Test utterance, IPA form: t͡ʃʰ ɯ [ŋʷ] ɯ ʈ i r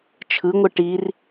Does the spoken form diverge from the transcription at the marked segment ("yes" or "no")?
no